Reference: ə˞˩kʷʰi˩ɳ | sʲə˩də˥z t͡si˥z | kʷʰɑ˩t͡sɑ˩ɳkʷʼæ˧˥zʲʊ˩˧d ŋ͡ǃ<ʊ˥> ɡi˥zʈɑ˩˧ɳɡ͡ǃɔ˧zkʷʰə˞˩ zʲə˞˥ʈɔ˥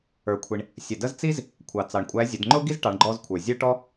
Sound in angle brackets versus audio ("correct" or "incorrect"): correct